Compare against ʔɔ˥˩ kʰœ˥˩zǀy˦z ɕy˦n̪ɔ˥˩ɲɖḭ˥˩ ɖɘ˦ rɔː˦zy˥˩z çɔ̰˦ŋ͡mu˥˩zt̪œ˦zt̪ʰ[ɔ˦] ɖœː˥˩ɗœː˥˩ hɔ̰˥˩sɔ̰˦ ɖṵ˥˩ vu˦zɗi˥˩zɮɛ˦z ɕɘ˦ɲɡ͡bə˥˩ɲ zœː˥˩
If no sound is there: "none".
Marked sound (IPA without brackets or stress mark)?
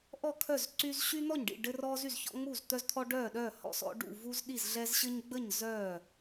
ɔ˦